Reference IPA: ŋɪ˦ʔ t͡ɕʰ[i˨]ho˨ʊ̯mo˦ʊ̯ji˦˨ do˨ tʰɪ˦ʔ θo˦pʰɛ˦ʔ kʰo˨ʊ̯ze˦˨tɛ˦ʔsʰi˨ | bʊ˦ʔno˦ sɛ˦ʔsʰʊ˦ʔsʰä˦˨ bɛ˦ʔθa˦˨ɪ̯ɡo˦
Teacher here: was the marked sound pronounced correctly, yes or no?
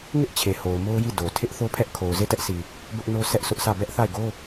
no